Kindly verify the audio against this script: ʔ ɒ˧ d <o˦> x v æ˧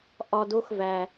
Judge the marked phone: correct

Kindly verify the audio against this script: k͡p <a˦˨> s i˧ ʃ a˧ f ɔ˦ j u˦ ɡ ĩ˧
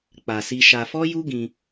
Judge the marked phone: incorrect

